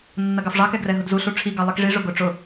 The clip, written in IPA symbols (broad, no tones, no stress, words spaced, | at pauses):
nːɐɡɑfʐɑ kɛɡrɛɦʊdzu ɬuʈ͡ʂʰi ɡɑlˠikʐi ʐʊɡʊ ʈ͡ʂʊ